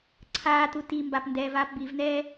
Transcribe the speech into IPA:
ǀʰaːtu timbap ndɛːvaːpbivnɛː

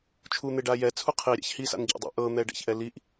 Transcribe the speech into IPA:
t͡ʃʰun̪eɖa jɛt͡sʰu qʰiɾʲa̰ç hisa̰nɟa̰dˤḛ ʔɤn̪ɛɖɛ̰çʔɛ liʔ

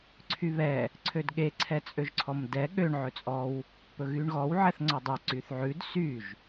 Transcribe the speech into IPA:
ǀʰyβɛ | ǀʰødɠe ǀʰɛt͡sʼøʒǀʰɔmdɛ ɠøɳ ʕɵt͡sʼɔw | pɵɣyɳɣɔw ʕɛθŋ͡ǀɔdˤɵ ǀyθʕʉd syʒ

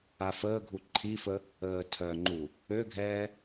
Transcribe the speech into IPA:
afəːɡʱu ǃʰifə | əːtʰœŋ͡ǃu | øɡʱɛː

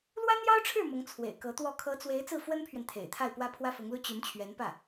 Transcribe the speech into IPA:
lwa˥njɑ˥ʊ̯ʈ͡ʂʰɻ̩˥˩ mʊ˧˥ŋt͡sʰwḛ˨˩ɪ̯kɤ˧˥t̪wɔ˥˩ kʰɤ˧˥t͡swe˧˥ɪ̯ t͡sɹ̩˥˩fwə˥npʰɥɛ˨n t̪ʰḛ˨˩ɪ̯t̪ʰa˥˩ɪ̯ pwä˥pʰwä˥fʊ˧˥ŋlu˥ t͡ɕy˧˥nt͡ɕʰɥɛ˧˥npä˥˩

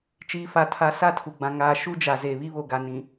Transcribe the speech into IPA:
t͡ʃiː˨fa˨ tʰa˨˦sa˦˨ tʰu˨ɡ͡bã˨ ŋaː˨ ʃu˦d͡ʒa˨ze˨ βi˦βo˨ɡa˨ nĩ˨

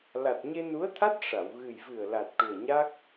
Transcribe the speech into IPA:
la˨˩t̚ ɲe˧nu˧˥ə̯t̪ʰa˦˥t̚ ʂa˨˩˨w ɣɨ˨˩jvɨ˨˩ə̯ la˨˩t̚ʈu˨˩ə̯ɲa˦˥k̚

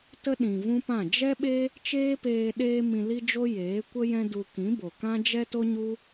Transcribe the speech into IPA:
tə˦ ɗĩ˨vũ˦pã˦˨ d͡ʒɛ˦ɓe˦ | t͡ʃeː˦peː˧ ɗeː˦mĩ˧li˦d͡ʒo˦ jeː˨˦kʷə˦jɛ̃˦ du˧ kĩ˨˦bo˨kã˦ d͡ʒɛ˦to˦ɲu˦

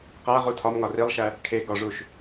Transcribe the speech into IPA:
qæʁu tʰɒmŋɒ rilˠʃæ | kʰe ɡɒʐuʃ

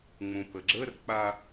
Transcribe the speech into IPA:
ŋ͡mũpəɡ͡ǁərk͡pa

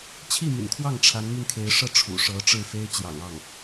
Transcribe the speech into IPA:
t͡ɕʰi˥˩my̰˨˩nkʰwɑ˥˩ŋ ʈ͡ʂʰa˧˥nmy˧nkʰe˧˥ɪ̯ʂɤ˥˩ ʈ͡ʂʰṵ˨˩ʂɤ˧˥ʈ͡ʂɻ̩˥˩fe˥ɪ̯ t͡ɕjɑ̰˨˩ŋɑ˥˩ŋ

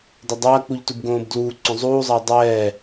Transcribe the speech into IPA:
dɐdˤɐːk͡puʎ tubɡõːbdluːǀõ zˤuːzˤɐː dˤɛː

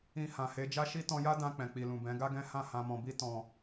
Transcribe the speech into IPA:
ĩ˧ hã˨ he˨˦d͡ʒa˦ʃi˦ tɔ̃˧ja˦dã˧ k͡pɛ̃˨k͡pi˨lũ˨ bɛ̃˨˦ɡa˦ɡɛ̃˦ hã˦˨hã˧mɔ̃˧bi˦ tɔ̃˧

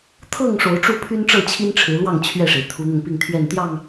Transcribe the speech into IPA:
t̪ʰɤ˥˨ŋ ʂo˨˦ʊ̯ʈ͡ʂu˥˨pʰy˦n ʈ͡ʂɤ˥˨t͡ɕʰi˦nʈ͡ʂʰɻ̩˨˦ lwɑ˥˨ŋ t͡ɕʰɥɛ˥˨ʂe˩ɪ̯ t̪ʰu˨˦n̪ʊ˧ŋpi˥˨ŋ t̪ʰɥɛ˥˨nt̪jɑ˥˨ŋ

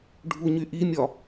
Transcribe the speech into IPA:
ɖʱuɲyʔimʲɒ

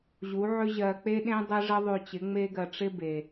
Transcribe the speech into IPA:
ʑu˨˦ʕʏ˦ʑɜ˧ k͡pe˦ɗẽ˦ dˤe˦ʐə˦ðˤʉ˧t͡ɕɪ˨˦ ŋ͡me˦ɡɜ˧ʈ͡ʂɪ˦ be˨

